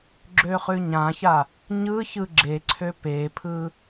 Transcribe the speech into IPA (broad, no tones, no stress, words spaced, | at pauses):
ɡ͡ǁøχʉɲãça | ɲɯ çɯɡ͡ǁeǀʰø pepʰɯ